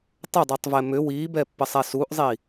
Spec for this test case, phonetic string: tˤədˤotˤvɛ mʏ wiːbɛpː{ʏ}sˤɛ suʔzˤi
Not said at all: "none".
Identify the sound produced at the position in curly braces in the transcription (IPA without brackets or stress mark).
ə